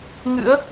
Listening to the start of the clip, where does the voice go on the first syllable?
rising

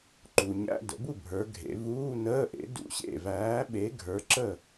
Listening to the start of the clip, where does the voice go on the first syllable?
low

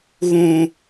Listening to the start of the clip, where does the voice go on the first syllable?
low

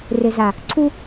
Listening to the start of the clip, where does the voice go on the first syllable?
low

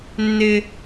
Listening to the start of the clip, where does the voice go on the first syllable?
high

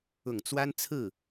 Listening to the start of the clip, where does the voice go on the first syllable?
low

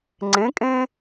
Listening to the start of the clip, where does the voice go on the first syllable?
rising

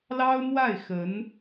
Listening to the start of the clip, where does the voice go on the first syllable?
high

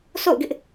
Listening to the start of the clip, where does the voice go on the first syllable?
falling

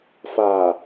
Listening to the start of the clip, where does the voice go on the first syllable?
low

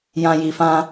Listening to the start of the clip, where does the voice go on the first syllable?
low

